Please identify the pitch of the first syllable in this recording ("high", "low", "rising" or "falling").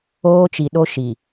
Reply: high